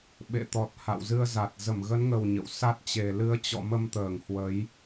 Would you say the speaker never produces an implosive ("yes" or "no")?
no